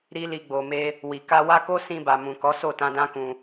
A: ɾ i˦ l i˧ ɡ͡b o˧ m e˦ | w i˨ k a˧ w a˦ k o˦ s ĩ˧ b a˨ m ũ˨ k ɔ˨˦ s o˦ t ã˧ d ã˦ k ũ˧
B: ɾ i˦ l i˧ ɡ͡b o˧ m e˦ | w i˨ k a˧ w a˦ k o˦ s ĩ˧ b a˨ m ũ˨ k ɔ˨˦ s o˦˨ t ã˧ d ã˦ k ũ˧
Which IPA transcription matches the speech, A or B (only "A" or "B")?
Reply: B